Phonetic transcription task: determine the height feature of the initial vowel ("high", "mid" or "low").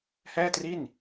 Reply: mid